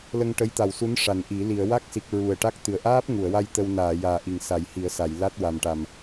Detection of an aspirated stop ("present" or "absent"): absent